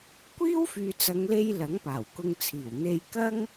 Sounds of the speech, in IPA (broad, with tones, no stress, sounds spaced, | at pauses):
kʷ iː˥ w f yː˨ t͡s ɐ˨˧ ŋ l e˧ j l ɐ˨˥ ŋ p aː˨˩ w k ʊ˧ ŋ t͡sʰ iː˨˩ w n̪ e˧ j k ɐ˥ ŋ